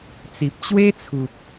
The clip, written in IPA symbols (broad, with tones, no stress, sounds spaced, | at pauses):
t͡s i˨ p̚ t͡ɕ w e˦ t͡sʰ u˨ p̚